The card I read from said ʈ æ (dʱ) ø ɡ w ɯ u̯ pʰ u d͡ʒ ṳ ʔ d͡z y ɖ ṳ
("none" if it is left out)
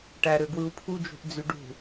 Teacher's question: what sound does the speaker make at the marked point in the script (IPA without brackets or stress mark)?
ɾ